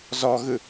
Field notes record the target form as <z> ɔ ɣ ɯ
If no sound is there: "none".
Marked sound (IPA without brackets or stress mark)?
z